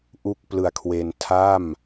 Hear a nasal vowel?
no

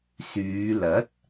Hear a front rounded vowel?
yes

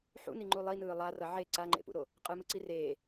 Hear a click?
yes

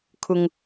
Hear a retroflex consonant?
no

